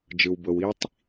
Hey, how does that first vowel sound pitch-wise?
low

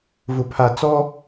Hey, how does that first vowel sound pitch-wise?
low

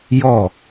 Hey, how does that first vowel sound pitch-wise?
falling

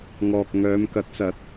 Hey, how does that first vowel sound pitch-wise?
low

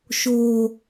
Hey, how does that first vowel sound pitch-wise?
low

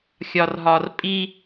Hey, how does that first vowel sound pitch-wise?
low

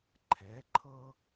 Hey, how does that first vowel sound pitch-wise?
rising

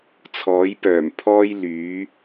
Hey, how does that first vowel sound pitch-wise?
rising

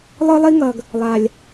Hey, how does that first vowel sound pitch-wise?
high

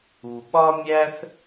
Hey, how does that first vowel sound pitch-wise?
low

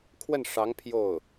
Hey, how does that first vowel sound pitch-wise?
falling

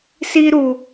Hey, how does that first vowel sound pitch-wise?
high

